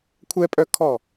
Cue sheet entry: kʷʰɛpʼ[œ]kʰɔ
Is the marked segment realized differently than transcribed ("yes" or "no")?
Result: no